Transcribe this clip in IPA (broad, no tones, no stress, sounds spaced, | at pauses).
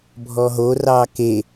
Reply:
bʱ ɔ ɦ o r ɑ k e